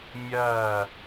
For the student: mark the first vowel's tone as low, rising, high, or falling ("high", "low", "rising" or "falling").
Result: falling